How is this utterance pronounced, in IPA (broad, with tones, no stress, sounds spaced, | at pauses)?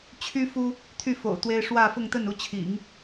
t͡ɕʰ y˥ f u˥ | t̪ʰ y˥˩ f o̰˨˩ ʊ̯ t̪ w e˥ ɪ̯ ʂ w ä˥˧ f ʊ˥˧ ŋ t̪ ə˥˩ n u˥ t͡ɕʰ ḭ˨˩˦ ŋ